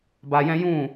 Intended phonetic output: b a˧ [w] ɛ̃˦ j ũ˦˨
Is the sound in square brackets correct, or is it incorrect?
incorrect